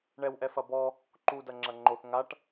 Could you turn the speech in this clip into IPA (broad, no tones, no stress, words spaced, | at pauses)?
ɳɛwʔɛfɐ bɔ | ǃudɐŋ͡ǁɐ ŋ͡ǃoθ ŋaʈ